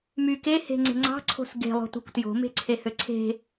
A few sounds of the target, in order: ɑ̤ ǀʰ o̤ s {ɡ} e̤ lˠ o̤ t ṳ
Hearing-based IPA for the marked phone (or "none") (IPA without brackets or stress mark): ɡ